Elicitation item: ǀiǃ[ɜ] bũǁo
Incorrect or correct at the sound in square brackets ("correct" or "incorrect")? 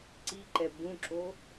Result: incorrect